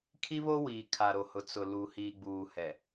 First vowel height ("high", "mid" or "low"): high